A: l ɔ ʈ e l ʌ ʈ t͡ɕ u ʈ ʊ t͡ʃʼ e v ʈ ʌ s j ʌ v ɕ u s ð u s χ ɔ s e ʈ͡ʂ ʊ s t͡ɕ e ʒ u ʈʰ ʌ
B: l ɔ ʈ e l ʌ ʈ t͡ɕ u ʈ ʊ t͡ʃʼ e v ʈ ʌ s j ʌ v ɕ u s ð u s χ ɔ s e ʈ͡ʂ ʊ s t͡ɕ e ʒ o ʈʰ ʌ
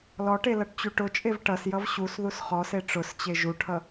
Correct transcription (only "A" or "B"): A